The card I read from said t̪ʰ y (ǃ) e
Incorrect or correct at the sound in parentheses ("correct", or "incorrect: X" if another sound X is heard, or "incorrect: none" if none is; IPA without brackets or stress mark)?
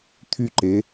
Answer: correct